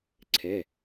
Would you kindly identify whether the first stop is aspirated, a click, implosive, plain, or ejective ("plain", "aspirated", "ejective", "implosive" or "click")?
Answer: click